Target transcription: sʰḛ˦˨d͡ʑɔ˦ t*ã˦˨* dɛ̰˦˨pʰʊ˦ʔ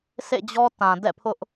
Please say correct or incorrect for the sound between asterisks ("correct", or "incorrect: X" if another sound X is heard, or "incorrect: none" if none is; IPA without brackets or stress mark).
incorrect: ã˨